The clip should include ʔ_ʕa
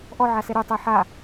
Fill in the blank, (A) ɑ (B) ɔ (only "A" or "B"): B